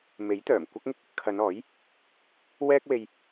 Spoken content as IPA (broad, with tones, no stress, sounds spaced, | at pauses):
m e˨˥ j t̪ œː˨˩ m kʷ ɐ˥ k̚ ŋ ɪ˥ k̚ | kʰ ɐ˨˧ n ɔː˨˥ j | w ɛː˥ k̚ w e˧ j